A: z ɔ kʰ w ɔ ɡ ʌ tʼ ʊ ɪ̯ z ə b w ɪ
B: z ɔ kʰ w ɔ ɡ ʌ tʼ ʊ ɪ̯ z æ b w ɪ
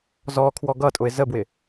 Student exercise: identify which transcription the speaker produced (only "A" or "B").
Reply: A